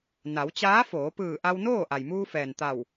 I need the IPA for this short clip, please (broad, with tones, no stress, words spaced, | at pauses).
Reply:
na˩˧wt͡ɕaː˧˥foː˩˧ pɯː˧˩ʔa˧wnoː˥˨ ʔa˩jmuː˧fɛː˩n t̪a˧˩w